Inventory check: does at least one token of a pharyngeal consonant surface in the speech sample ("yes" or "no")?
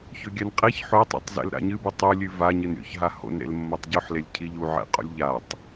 yes